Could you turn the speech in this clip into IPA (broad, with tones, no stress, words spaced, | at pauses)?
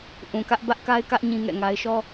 ʔũ˨kä˦ʔ bä˦ʔka˦ɪ̯kä˦ʔ ɲĩ˦ŋɛ̰˦˨ŋa˦ɪ̯ ʃɔ˦